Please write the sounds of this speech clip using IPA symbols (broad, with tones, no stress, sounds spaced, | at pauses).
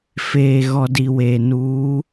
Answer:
f eː˨ ɣ ɔ˨ d i˨ w eː˨ n uː˨˦